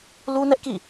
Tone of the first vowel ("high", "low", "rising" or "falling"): high